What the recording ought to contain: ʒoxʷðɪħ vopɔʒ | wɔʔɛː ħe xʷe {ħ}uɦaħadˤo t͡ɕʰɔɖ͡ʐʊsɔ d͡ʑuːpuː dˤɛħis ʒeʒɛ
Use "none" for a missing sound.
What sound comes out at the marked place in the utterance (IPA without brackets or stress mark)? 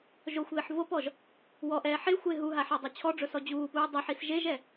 ɦ